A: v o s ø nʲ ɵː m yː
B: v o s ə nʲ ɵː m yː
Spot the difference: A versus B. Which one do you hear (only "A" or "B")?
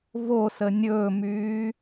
B